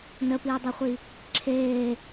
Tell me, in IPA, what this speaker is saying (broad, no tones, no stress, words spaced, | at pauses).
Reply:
nəpiːdˤɛχʷi | ǁʰeː